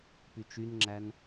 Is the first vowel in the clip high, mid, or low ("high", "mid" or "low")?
high